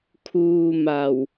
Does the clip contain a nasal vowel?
no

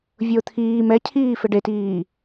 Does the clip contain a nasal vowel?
no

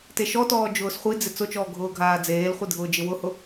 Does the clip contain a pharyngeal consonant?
no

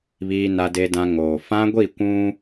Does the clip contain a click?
no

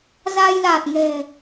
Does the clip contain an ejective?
no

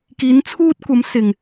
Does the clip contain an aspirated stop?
yes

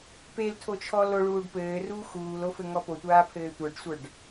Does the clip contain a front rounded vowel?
no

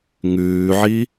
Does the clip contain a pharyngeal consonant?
yes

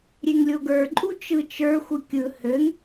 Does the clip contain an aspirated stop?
no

